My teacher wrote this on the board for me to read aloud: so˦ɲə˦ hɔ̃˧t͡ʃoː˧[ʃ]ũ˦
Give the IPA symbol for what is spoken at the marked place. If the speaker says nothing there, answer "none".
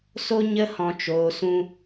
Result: s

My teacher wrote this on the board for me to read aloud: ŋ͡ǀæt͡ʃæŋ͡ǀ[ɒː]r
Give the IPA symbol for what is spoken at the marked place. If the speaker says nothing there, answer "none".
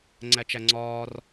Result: ɒː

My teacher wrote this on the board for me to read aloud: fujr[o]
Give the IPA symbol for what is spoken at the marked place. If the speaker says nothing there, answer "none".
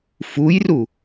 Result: u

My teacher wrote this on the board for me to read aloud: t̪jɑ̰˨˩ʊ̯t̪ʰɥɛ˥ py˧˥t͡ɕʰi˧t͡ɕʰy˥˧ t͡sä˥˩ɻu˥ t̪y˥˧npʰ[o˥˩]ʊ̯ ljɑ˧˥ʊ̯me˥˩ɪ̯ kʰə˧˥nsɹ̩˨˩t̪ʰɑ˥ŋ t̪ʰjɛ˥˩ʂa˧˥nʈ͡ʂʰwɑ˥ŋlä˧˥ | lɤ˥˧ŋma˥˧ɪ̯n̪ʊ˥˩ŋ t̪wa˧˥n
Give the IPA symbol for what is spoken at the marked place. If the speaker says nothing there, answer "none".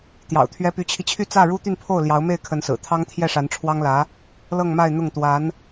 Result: o˥˩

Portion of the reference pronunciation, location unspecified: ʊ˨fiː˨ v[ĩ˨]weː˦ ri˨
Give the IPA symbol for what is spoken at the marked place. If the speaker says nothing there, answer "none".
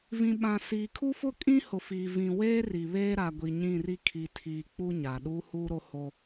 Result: ĩ˨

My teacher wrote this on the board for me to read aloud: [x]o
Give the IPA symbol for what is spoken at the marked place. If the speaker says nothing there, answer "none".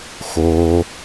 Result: x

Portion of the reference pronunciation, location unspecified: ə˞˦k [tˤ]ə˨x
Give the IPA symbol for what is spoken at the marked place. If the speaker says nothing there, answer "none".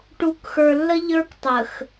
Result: tˤ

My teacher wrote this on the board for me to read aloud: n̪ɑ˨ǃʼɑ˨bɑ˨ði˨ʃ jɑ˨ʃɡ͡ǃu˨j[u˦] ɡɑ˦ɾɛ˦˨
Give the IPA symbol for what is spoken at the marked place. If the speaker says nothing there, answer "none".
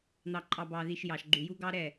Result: u˦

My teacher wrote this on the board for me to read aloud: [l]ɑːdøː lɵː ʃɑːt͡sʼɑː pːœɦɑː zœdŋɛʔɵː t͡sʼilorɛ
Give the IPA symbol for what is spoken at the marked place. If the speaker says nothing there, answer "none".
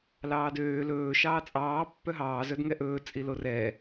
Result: l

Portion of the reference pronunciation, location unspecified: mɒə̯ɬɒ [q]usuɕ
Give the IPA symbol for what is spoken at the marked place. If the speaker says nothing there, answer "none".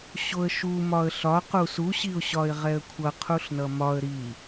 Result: q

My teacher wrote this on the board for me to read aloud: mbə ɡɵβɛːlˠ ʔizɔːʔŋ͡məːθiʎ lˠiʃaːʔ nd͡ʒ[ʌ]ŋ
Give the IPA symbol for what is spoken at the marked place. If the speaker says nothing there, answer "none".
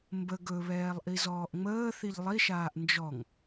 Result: ɔ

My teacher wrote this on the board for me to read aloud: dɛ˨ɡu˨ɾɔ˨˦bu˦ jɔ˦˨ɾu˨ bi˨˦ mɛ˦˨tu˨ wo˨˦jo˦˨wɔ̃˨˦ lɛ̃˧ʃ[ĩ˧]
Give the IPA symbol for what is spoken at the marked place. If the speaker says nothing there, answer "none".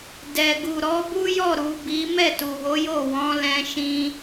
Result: ĩ˧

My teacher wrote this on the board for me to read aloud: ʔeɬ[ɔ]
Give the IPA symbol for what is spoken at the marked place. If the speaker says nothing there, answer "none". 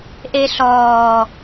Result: ɔː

